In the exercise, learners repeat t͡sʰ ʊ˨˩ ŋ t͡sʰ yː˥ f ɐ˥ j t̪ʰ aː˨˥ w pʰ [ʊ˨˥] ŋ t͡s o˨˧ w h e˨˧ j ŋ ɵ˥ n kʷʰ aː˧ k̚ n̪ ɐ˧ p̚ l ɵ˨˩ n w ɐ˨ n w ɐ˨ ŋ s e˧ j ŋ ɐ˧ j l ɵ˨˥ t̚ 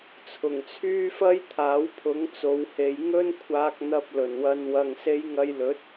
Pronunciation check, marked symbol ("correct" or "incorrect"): correct